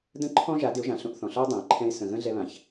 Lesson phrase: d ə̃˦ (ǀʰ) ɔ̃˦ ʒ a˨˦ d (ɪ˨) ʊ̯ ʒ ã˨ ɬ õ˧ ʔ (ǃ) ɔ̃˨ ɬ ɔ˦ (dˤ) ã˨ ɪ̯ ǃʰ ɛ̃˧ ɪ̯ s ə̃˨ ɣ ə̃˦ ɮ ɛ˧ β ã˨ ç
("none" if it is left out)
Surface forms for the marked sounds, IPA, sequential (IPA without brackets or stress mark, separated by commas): ǃʰ, ɪ˨˦, θ, dˤ